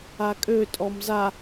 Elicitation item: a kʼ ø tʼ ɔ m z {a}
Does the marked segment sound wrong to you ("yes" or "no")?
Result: no